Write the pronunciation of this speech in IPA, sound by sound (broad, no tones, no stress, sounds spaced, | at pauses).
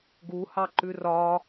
ɡ u h ɑ ǃ ʉ r ɒ